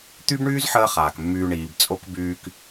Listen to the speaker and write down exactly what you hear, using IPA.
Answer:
t̪ y˦ b ɳ yː˦ z ħ əː˦ χ aː˨ k mː yː˧ ɳ iː˨ b t͡sʼ o˦ k b yː˧ k

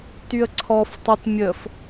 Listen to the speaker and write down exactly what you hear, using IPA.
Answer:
t y ə̯ ǀʰ ɔ f tˤ ə t mʲ ə f

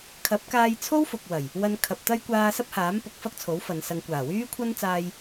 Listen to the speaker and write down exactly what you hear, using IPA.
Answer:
kʰ ɐ˨˥ p̚ k aː˧ j t͡sʰ o˥ w f ʊ˨ k̚ w ɐ˨˩ j | w ɐ˧ n kʰ ɐ˨ p̚ t̪ ɐ˥ j kʷ aː˧ s ɐ˥ p̚ h aː˨˥ m p ʊ˨˥ k̚ f ɐ˥ k̚ t͡sʰ o˨˥ w f ɐ˨ n s ɐ˨ ŋ kʷ aː˨˩ w yː˥ kʷʰ ɐ˥ n t͡s aː˧ j

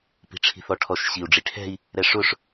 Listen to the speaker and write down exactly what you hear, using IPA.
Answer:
p i̤ ʈ͡ʂʰ i̤ θ ɔ ʈʰ ɔ ʃ ɕ i u̯ ɖ͡ʐ i ʈʰ ɛ̤ i̯ | ɾ ɛ ʂ ʊ ʂ

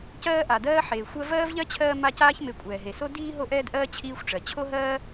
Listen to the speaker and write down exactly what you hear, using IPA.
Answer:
c ɜː˦ ʔ a˩ d ɜː˦ ħ eː˩ xʷ ɜ˦ v ɜː˥ v ʎ ɜ˥ t͡ɕʰ ɜː˦ m a˦ c aː˥ ç m e˨ kʷʼ ɛː˩ ɦ e˩ s o˥ d iː˦ ɦ o˦ ʔ ɛː˦ d ʔ ɜː˦ t͡ɕʰ iː˦ xʷ ʈ͡ʂ ɜ˩ t͡ɕʰ o˥ ɦ ɜː˥

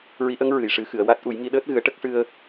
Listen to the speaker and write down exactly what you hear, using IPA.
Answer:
ɹ i˧˥ ʔ ə˧˥ ŋ ɹ ɨ˨˩˨ j ʂ ɨ˨˩˦ x ɨ˨˩˨ ə̯ w a˦˥ t̚ ʔ u˨˩˦ j ŋ i˧ ɗ əː˦˥ t̚ ɣ ɨ˨˩˦ ə̯ ʈ ə˦˥ k̚ ʂ ɨ˧ ə̯

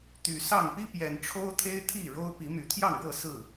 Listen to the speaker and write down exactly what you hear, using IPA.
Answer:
t̪ y˨˩ s ɑ˥˨ ŋ p i˦ p j ɛ˨˩ n ʈ͡ʂʰ o˦ ʊ̯ t̪ʰ e˦ ɪ̯ t̪ʰ i˥˨ ɻ o˦ ʊ̯ p i˨˦ m y˨˦ t̪ʰ j ɑ˥˨ ŋ ɻ ɤ˥˨ s ɹ̩˥˨

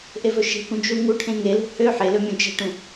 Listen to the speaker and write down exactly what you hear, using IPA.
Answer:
ʔ e v ɵ ʃ e̤ k ũ d͡ʒ u ŋ u ʈʰ ẽ ŋ e l ṳ h ø ħ e l ɵ mʲ ũ d͡ʒ ɛ̤ ʈ ũ

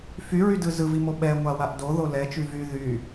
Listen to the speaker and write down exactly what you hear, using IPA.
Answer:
f y ɹ y d ɯ z ɯ v i m o ɓ ɛ ŋʷ a w a ʔ d o ð o l ɛ t͡ʃ y v y ð y

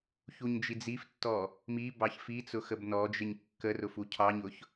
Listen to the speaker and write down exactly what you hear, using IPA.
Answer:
ç u ɲ d͡ʒ i d͡z i f tː ɔ | m i b ɑ ç f i t͡s ʊ x ə b n ɔ d͡ʒ ɪ ɲ kː ə r ʊ f u cʰ ɑ ɲ ʊ ç

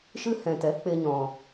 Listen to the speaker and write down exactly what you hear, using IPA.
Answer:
ʃ ɨ˦ h ɛ̃˨ t ɛ˨˦ k͡p e˧ ɲ ɔ̃˨

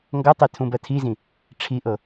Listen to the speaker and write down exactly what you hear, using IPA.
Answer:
ŋ ɡ ʌ tˤ i tʰ ũ b ɜ tʰ i z ĩ | ʈ͡ʂʰ i ʔ ɤ

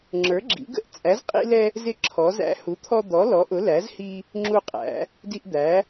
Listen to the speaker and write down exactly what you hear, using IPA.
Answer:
ŋ͡ǁ ə˞˨˥ ɡ͡ǁ ḭ˨˥ ɡ ə̰˦ ʔ t͡sʼ æ˨˥ z qʼ ḭ˦ l ɛ˦ | z ɪ˦ ǁʰ ɔ˨˥ z æ̰˦ h u˨˥ t̪ʰ ɔ˦ d̪ ɔ˨˥ l ɔ˨˥ ʔ ʊ˨˥ l æ˨˥ z h i˦ | ŋ͡ǁ u˦ qʼ æ̰˨˥ | d i˦ ʔ d̪ æ˨˥

